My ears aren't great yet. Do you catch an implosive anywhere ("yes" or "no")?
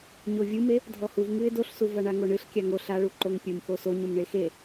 no